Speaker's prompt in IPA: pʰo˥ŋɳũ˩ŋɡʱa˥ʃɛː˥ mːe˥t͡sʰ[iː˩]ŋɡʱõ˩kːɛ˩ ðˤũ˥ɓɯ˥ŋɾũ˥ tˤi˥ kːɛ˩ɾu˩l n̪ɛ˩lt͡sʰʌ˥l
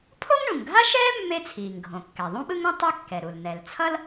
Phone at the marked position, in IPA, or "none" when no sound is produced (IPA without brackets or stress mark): iː˩